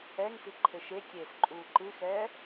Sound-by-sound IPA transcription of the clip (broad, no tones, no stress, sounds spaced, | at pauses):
ɛ ŋ s i ǃʰ ɘ ʃ e kʲ eː s ǃʼ uː ǃ ɨ x ɛː